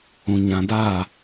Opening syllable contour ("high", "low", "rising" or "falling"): low